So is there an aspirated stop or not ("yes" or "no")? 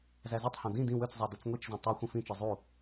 no